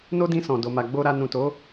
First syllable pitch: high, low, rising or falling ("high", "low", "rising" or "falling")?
high